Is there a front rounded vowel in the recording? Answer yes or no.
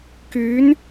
yes